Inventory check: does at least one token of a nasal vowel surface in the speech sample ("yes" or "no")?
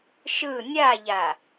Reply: no